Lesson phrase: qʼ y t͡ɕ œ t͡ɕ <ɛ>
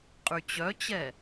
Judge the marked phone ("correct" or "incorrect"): correct